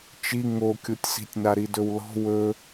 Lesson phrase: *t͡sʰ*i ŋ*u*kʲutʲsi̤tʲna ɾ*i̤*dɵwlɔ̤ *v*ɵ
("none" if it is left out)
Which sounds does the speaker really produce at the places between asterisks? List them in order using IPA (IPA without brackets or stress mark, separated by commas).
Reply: t͡ʃ, o, i, w